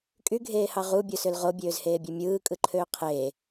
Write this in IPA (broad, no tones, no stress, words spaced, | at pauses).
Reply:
kʼyɡʱeːhɑ ʁubʲosøl ʁobʲøːzheːbʲe mʲɯːkʼɯǃʰøː qʰeː